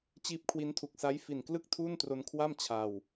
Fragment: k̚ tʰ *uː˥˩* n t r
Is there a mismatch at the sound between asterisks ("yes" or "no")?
no